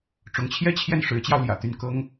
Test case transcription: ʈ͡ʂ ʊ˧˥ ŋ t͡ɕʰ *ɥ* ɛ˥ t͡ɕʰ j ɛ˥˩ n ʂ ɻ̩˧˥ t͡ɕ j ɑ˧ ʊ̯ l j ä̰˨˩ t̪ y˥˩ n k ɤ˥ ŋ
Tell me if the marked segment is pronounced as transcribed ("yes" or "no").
no